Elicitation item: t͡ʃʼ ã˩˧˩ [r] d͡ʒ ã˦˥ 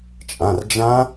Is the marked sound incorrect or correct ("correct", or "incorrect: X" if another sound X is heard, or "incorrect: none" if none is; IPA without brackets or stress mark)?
correct